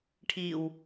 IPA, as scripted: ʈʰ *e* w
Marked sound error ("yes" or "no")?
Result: yes